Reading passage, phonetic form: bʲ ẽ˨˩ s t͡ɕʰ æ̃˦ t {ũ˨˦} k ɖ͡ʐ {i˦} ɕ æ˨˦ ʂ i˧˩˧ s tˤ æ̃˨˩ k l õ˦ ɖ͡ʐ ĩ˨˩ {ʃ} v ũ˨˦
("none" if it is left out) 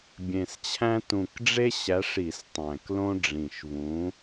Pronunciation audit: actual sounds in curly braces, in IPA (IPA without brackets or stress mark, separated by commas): ũ˨˩, e˦, ʃ